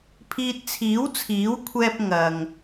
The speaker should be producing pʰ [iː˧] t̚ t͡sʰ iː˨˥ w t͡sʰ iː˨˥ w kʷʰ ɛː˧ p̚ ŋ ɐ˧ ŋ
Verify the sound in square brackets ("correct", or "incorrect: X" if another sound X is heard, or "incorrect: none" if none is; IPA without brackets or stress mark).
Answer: correct